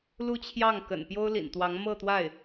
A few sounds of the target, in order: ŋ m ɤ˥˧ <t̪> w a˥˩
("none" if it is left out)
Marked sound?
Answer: t̪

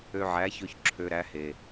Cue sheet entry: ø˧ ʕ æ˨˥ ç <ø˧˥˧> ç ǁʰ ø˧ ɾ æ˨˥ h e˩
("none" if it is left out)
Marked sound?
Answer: ø˧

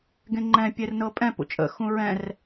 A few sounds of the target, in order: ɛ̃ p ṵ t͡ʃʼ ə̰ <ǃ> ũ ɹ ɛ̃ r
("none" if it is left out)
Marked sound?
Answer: x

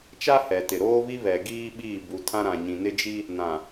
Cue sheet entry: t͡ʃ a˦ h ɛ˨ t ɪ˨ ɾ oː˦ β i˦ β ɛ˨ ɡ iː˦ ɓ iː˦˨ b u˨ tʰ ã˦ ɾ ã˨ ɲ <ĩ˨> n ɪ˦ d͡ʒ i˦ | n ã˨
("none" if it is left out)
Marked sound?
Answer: ĩ˨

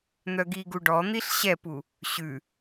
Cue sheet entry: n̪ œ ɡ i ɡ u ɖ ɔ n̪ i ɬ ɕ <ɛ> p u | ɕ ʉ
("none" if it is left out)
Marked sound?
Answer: ɛ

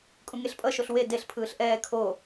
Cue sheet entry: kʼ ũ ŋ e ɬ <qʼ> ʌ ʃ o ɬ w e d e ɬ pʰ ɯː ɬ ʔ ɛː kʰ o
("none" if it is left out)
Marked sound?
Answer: pʼ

